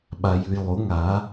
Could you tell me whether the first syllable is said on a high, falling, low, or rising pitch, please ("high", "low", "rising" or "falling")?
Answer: low